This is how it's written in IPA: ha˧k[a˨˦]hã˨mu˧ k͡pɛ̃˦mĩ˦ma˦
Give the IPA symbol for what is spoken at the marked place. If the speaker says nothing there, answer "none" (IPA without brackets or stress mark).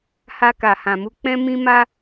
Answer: a˨